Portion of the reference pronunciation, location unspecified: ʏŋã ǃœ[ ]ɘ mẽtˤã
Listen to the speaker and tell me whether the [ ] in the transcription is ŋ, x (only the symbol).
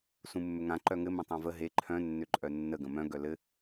ŋ